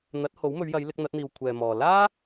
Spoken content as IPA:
n̪ ɐ˨˥ t̚ h o˨˥ w m ɵ˨˧ ɥ j ɐ˨˧ j l ɪ˧ k̚ n̪ ɐ˨˥ t̚ n̪ iː˨ w kʷʰ ɛː˨ m ɔː˨ l aː˥

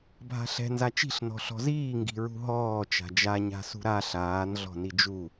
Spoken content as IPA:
bʱ a̤ ɬ ɛ̤ n z a t͡ʃ i̤ ɬ n ɔ̤ ɬ ɔ̤ z iː ŋ ɡ i̤ ɹ ṳ ɦ ɔː t͡ʃ a̤ d͡ʒ a ɲ a̤ s ṳ ɾ a ɬ aː n ɮ ɔ̤ n i d͡ʒ u

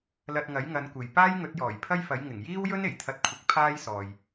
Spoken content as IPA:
l ɐ˨ t̚ ŋ ɐ˨˥ j ŋ ɐ˨˧ n kʷ e˨ j p aː˥ j ŋ ɵ˨˥ t̚ j ɔː˨˩ j pʰ ɐ˥ j f ɐ˨˥ j ŋ ɪ˨˩ ŋ j iː˥ w j ɵ˥ n e˨˩ j t̪ʰ ɐ˧ t̚ kʷʰ ɪ˨˥ k̚ pʰ aː˥ j s ɔː˨ j

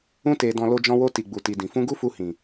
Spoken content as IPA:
ũ˧ t e˨ d ɔ̃˨ l o˧ d͡ʒ ɔ̃˧ w o˧ t i˨ ɡ͡b u˨ t i˨ d ĩ˨ f ũ˧ ɡ u˦ f u˧ h ĩ˨

